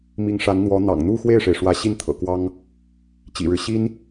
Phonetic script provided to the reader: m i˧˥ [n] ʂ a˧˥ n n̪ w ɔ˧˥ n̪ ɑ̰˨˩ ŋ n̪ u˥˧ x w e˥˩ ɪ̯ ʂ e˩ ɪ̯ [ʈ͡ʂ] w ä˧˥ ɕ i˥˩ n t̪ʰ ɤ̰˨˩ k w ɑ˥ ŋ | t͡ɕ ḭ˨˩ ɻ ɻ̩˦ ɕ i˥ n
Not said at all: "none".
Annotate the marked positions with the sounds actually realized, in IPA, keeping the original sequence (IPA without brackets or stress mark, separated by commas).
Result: ŋ, ʂ